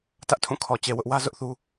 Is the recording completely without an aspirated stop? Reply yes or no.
no